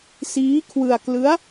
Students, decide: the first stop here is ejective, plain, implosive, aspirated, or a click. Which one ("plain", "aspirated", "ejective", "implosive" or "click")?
aspirated